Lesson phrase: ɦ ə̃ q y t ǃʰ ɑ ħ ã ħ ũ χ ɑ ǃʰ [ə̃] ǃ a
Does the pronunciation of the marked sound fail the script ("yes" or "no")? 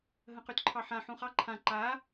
yes